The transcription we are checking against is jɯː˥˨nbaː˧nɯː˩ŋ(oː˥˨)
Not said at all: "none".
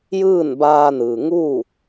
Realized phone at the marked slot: uː˥˨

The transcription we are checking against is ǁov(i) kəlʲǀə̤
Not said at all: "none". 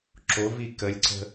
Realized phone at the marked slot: i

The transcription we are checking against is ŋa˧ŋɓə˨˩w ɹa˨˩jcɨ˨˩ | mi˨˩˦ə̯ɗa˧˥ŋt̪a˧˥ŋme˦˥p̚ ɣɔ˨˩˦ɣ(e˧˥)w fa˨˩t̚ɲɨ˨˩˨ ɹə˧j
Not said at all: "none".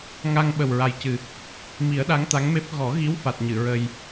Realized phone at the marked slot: i˧˥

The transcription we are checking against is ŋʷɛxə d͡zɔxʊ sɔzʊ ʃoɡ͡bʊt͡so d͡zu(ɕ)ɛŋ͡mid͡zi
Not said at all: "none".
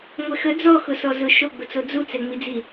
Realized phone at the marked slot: t͡s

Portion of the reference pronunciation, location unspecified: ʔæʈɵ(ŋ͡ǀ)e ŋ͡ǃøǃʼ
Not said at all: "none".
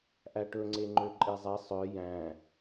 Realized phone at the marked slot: ŋ͡ǀ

